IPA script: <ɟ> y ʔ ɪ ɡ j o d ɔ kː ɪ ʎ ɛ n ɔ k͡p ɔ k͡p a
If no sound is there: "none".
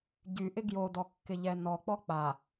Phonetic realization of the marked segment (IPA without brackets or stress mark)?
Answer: ɟ